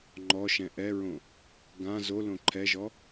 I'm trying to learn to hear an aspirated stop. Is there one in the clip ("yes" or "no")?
yes